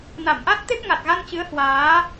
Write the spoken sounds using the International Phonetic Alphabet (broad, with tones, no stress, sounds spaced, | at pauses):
n a˧˩ m ʔ a˦˥ t̚ t̪ e˦˥ p̚ ŋ a˨˩ t̚ ɣ a˧ n t͡ɕ ɨ˨˦ ə̯ h w aː˨˦